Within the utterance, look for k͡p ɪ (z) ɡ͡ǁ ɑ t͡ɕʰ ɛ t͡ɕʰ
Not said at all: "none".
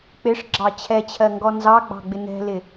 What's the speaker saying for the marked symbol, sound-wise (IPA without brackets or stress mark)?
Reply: ʂ